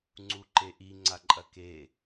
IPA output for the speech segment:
ŋ͡ǀ u ǃ e ʔ i ŋ͡ǀ a ǃʼ ɐ k e

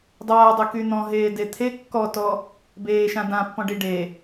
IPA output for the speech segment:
dˤ aː dˤ œ k y n̪ ɔ̃ ɦ eː d e t̪ʰ e kː ɔ t ɔ | b eː ʃ ã d ã pː ɔ̃ ɖ i ɖ e

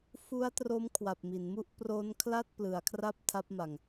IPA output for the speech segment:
f u˦˥ a̯ t r o˦˥ m kʰ w a˨˩ p̚ m i˩˦ n m u˥˩ ʔ p r o˦˥ n kʰ l a˥˩ t̚ p l ɯ˩˦ a̯ kʰ r a˥˩ p̚ tʰ a˦˥ p̚ m a˨˩ ŋ

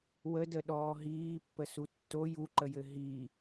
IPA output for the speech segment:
w ə d ə ɗ ɔː ɦ iː pː ə s u tː o j u ǃ ə j ɘ ɦ i

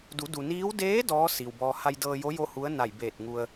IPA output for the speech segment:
d u˩˧ d u˩ n iː˧˥ w d eː˧˥ d ɔː˧˥ s iː˩ w b ɔː˧ h a˧ j d ɤː˧ j o˧˥ j o˥˨ h u˧˥ ə̯ n a˧˩ j b eː˧˩ t̚ ŋ u˧ ə̯

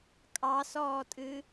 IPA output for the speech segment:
kʼ ɑ s ɔː tʼ ɨ

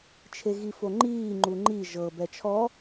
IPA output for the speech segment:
t͡ʃʰ e ɣ i f o ŋ͡ǃ iː ŋ͡ǃ u ŋ͡ǃ i ʒ ɤ b ɛ t͡ʃʰ ɔ

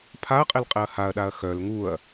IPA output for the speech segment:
pʰ a ɐ̯ qʼ e l qʼ ɛ ɐ̯ h a ɐ̯ ɗ a ɐ̯ x œ l ŋ u ɐ̯

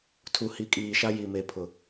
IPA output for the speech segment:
tʰ u˨ h i˨ kʼ iː˨ ʃ a˦ j i˨ m e˨ pʰ ʊ˨

